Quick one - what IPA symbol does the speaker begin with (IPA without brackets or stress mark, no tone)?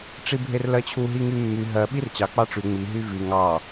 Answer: ʈ͡ʂ